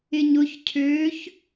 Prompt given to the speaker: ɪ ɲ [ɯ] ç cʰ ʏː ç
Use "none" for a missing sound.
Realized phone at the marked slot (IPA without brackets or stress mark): ʊ